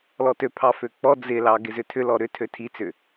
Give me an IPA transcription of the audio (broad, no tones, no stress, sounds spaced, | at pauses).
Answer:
l ɔ t ø pʰ ɑ f ø k͡p ɔ d͡z ɪ l ɑ ɡ ɪ z ʏ tʰ ʏ l ɔ ɾ ʏ tʰ ø tʰ i t͡s ʏ